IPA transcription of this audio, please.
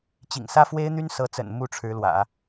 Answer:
t͡ɕ ḭ˨˩ ŋ s ä˥ f w e˥ ɪ̯ n̪ y˥ n s ɤ˧˥ t͡s ə̰˨˩ n m u˥˩ ʈ͡ʂʰ ɻ̩˧˥ l w ä̰˨˩˦

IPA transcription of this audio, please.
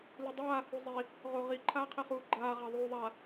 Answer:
l u dˤ aː h u zˤ i | ʁ o ʁ i ǃʰ aː qʰ ɛ χ uː ɡ͡ǃ aː ʁ a ðˤ uː ðˤ a

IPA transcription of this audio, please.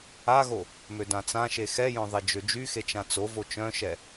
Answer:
a ɣ o | m ø d ã t͡s ã ʃ e x ɛ j œ̃ ðˤ e d͡ʒ ø d͡ʒ y x e t͡ʃ ã t͡s o v o t͡ʃ œ̃ ʃ ɛ

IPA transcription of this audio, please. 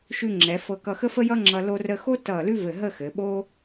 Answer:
ʃ ʉ˧ ŋ͡ǁ ɛ˩˧ f ɤ˧ k ʌ˧ x ə˥ f ə˥ j ʌ˥ ŋ͡ǁ ʌ˧ l o˧ r ə˧ x o˥ t ʌ˧˩ l ʉ˥ v ɘ˧˩ ɦ ə˥˧ x ɘ˩˧ ɓ o˥

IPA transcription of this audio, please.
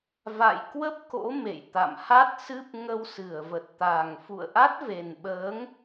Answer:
v a̰˧˨ j k w ə˦˥ p̚ k o̰˧˥ m ḛ˧˨ j t̪ a̰˧˨ m h a˦˥ t̚ s ɨ˦˥ p̚ ŋ ə˧ w s ɨ˧˩ ə̯ v ə˨˩ t̚ t̪ a˨˩ ŋ f ṵ˧˨ ə̯ ʔ a˦˥ t̚ v e˨˩ n ɓ əː˨˦ ŋ

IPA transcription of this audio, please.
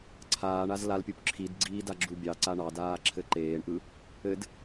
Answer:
ǀʰ aː ɳ a z l a l pʲ u p ǁʰ i d ɡ͡ǀ iː d a ɡ͡ǁ u bʲ ɑ ǀ a ɳ ɑ d aː ǁʰ ɘ ǃ eː ɳ ʔ ɯ | ɘ d

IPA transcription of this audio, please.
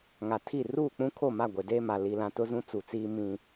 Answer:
ŋ a˨ tʰ i˦˨ r uː˦˨ k͡p ũ˦ kʰ o˦˨ m a˦˨ ɡʷ e˨ d eː˦ m a˨ l i˨ l ã˨ t ʊ˦ z ũ˦ t͡s u˨ t͡s iː˦ m ĩ˦

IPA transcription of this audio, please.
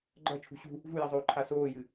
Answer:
ɡ͡ǃ ɐ t͡ʃʰ ṳ ɕ ṳ | v u j ɐ zˤ oː ǃʰ a s oː j ɨ

